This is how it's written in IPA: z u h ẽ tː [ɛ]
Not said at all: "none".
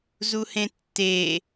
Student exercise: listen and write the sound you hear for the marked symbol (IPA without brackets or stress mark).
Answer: e